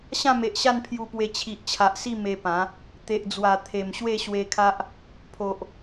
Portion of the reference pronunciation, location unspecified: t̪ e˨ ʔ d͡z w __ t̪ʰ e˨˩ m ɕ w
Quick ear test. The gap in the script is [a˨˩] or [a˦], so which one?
a˨˩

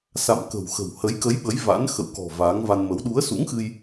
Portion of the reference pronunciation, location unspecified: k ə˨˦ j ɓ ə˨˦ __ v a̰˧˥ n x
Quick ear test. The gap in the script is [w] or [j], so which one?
j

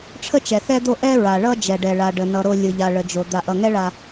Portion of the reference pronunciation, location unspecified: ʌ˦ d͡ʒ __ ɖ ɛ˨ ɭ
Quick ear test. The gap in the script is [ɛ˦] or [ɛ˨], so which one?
ɛ˨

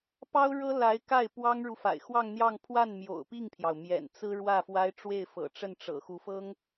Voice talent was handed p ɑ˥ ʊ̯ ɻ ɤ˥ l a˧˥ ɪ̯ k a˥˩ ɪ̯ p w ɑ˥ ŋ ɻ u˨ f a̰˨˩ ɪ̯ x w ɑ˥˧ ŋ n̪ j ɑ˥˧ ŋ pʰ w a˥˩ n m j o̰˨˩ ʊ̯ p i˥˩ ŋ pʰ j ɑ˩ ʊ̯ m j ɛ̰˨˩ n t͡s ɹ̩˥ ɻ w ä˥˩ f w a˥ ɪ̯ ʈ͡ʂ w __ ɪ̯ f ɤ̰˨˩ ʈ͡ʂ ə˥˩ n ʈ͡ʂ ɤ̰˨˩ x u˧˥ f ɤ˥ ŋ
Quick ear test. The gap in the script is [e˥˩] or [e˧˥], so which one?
e˥˩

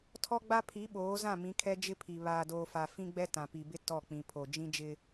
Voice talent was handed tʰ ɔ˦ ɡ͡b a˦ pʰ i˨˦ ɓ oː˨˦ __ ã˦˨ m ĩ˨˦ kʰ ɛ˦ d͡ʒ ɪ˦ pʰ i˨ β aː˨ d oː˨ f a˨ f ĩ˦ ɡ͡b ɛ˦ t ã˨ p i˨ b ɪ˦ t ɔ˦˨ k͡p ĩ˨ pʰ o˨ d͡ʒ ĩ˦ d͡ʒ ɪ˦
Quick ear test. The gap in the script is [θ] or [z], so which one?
z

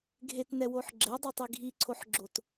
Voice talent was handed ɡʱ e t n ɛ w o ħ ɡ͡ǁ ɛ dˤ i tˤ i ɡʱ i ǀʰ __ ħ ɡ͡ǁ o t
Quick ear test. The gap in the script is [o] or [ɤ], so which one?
o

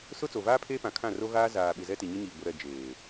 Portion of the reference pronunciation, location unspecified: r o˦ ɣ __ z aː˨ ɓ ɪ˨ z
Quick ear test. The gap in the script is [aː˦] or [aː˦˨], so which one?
aː˦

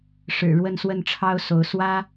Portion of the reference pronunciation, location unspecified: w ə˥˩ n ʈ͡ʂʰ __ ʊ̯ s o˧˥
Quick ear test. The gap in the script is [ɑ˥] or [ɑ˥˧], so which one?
ɑ˥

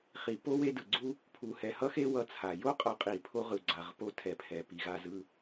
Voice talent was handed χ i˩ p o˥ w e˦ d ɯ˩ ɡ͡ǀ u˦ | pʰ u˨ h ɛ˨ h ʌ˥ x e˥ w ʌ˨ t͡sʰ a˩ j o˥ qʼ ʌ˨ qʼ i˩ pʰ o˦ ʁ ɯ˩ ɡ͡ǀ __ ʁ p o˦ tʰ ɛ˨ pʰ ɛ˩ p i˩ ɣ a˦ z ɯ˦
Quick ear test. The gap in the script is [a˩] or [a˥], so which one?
a˩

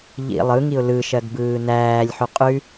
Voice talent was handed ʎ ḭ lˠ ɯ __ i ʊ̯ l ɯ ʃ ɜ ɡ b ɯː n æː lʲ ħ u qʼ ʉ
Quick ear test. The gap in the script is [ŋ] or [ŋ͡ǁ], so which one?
ŋ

